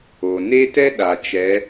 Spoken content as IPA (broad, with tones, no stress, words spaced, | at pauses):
o˩ ne˥tɛ˥ ɗa˩t͡ʃɛ˩˧